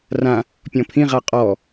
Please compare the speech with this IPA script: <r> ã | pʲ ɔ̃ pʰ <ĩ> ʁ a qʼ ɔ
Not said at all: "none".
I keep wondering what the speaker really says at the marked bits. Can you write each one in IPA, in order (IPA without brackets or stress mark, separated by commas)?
r, ĩ